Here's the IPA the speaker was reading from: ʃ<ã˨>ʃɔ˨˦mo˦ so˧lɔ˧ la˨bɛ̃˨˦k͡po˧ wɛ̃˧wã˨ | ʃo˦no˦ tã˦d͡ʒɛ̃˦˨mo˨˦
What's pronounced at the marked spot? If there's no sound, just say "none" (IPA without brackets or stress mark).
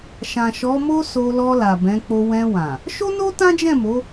ã˨